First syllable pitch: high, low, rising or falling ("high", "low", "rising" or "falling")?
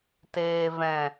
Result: low